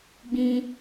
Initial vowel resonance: nasal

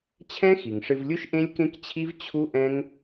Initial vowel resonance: nasal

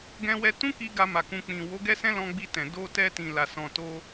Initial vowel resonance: nasal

